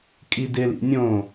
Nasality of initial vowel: oral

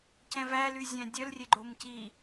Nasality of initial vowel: nasal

